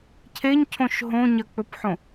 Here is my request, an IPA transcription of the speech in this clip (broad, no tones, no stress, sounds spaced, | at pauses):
cʰ e ɲ cʰ õ ʃ ɦ õ ɲ ɐ k͡p ɵ p ħ õ